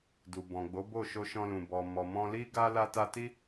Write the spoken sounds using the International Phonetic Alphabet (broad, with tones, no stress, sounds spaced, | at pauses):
d u˨ b ɔ̃˨ ɡ͡b o˨˦ b o˦˨ ʃ o˧ ʃ ɔ̃˧ l ũ˨ b ɔ˨ m ɔ˨ m ɔ̃˧ l i˧ ɡ a˧ l a˧ t a˧ t i˦